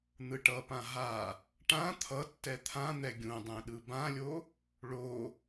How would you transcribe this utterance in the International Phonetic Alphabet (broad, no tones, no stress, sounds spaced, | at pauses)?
n̪ ɯ ʈ ʌ p ã ɦ a | ʈ ã t̪ʰ ʌ tː ɛ t̪ʰ ã n̪ ɛ ɡʲ ũ dˤ ɛ̃ ɗ ɯ b ã lʲ o | ɭ o